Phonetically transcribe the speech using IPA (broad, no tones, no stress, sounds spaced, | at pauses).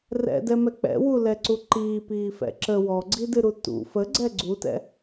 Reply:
r ɛ̰ d ɛ m ɛ k͡p ɛ̰ w u l ɛ ǀ u ǃ iː p iː f ɛ̰ ǁ ə w ɔ ɡ͡ǀ i d ɨ ɾ u t ṵ f ə ɡ͡ǀ ɛ ɡ͡ǀ u t ɛ̰